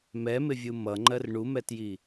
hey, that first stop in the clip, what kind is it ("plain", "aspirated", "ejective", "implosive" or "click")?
click